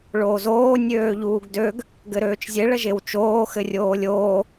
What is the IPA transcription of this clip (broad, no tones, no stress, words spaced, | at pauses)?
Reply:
ɭoːzoː nʲøːʎuːɡdøɡ | ɡɘɾøːt͡ʃzʲe ɭəʒewt͡ʃoː xɘrʲoːlʲoː